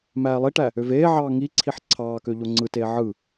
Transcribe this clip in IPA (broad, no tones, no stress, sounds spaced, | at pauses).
m æː lˠ i ʈ æ | ø v eː ʕ ɑː ŋ i ǀʰ i ħ ǀʰ ɑː k ø ʎ o ŋ͡ǀ ɯ t eː ʕ ɯ